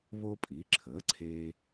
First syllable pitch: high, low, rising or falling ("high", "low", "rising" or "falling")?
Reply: high